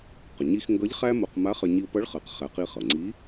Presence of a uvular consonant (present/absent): present